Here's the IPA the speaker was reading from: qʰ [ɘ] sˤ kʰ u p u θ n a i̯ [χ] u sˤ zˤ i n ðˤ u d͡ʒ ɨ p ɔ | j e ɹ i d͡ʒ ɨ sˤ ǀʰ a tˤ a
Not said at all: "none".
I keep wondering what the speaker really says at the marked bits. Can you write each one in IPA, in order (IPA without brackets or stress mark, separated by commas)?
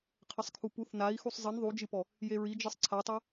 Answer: ɘ, x